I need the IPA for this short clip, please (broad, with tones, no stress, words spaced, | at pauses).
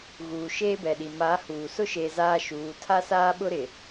ɣuː˨ʃeː˦bɛ˨ɗi˨ ma˨˦huː˨ sʊ˦ʃeː˨ zaː˦ʃuː˨˦ tʰa˦saː˦ ɓʊ˦ɾɪ˨